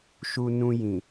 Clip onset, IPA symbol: ʃ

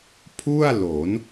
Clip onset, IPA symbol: pʰ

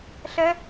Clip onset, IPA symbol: ɬ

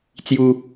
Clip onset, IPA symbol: t͡s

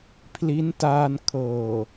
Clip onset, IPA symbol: pʰ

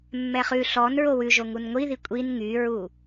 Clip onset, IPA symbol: mː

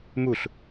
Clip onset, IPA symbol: m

